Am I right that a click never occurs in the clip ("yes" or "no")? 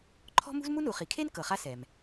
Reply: no